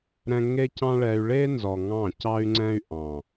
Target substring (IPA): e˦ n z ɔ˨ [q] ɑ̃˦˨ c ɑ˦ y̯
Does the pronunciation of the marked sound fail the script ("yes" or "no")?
yes